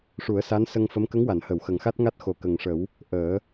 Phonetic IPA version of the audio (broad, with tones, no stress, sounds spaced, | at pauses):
ʂ u˨˩˦ ə̯ s a˧˥ n s ə˧ ŋ f ə˧˥ m k ə˧˥ ŋ w a˨˩˨ n h ə˨˩˨ w x ə˨˩ ŋ x a˦˥ t̚ ŋ a˦˥ t̚ x o˨˩ k ə˨˩ ŋ ʂ ə˨˩˦ w | ʔ əː˨˩˦